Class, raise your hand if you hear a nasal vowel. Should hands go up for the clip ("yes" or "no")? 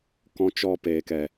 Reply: yes